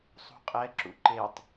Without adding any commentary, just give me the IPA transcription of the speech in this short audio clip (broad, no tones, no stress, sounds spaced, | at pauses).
sˤ ṳ qʼ ɛ ǁ ṵ ǃ e tˤ